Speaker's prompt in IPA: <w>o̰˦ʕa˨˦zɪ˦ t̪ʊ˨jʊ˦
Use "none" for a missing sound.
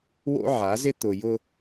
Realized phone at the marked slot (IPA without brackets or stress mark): w